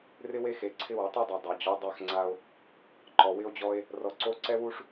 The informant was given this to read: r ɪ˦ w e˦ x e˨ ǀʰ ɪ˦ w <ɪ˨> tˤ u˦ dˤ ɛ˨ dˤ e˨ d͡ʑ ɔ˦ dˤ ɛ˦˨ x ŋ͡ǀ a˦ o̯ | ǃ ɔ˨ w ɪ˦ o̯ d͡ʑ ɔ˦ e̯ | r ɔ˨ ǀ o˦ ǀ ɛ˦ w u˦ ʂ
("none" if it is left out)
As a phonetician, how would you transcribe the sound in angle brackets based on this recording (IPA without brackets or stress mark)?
ɪ˨˦